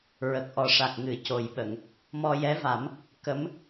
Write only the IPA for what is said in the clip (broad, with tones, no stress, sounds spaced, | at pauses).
ɹ ə˨˩ k̚ ʔ ɔ˨˩ ʂ a˨˩ k̚ ŋ ɨ˨˩˦ c o˨˩ j ɓ ə˨˩˨ ŋ | m ɔ˧ j ɛ˧˥ v a˨˩˦ m | k ə˧˥ m